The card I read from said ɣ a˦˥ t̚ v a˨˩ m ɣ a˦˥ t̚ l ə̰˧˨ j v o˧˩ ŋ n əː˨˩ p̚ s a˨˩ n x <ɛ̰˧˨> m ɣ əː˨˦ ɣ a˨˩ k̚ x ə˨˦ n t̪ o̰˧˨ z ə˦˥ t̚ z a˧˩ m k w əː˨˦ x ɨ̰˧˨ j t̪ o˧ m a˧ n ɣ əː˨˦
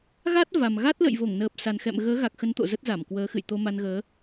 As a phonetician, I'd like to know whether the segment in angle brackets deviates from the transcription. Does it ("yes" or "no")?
no